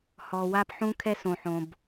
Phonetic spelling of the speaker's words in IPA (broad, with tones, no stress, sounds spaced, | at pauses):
h ɔ˨ w a˦ p ħ ũ˦ kʰ ɛ˦ s õ˨ ħ õ˨ b